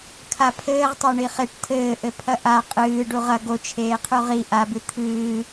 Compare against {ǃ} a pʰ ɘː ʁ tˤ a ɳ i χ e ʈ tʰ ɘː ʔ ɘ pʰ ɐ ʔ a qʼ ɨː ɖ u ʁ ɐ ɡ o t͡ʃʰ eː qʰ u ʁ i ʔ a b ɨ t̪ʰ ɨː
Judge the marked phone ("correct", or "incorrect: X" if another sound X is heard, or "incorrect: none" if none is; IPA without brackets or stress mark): incorrect: kʰ